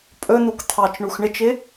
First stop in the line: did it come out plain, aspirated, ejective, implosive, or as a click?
ejective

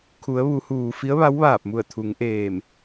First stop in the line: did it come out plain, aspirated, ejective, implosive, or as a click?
aspirated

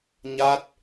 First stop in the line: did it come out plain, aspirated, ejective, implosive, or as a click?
plain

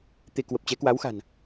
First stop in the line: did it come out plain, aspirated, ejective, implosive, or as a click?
plain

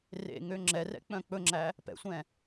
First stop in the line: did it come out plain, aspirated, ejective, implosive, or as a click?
click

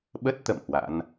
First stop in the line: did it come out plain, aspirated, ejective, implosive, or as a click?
implosive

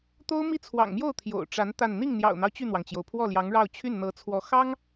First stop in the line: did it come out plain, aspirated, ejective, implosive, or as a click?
plain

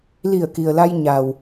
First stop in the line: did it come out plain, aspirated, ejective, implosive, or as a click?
plain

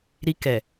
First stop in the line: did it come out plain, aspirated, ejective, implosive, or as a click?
plain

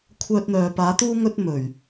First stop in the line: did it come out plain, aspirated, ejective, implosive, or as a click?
aspirated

